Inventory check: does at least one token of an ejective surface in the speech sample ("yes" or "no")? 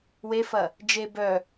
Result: no